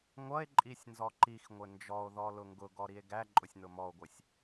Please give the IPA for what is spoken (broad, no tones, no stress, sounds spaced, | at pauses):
ŋʷ ʌ e̯ ǃʼ i sʲ n z ɔ ǃ i x ŋʷ ɪ n d͡ʒ ɔ o̯ ð ɔ l ʊ ŋ ɡ ʊ ɡ ɔ ɾ i e̯ ɡ æ ǃʼ ʊ sʲ n ʊ m ɔ o̯ ɡʷ ɪ sʲ